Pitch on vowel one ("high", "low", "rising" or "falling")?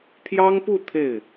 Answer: high